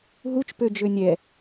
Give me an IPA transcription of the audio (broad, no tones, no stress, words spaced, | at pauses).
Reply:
ɦut͡ʃpød͡ʒø nʲɛ